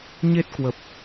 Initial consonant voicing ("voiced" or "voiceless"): voiced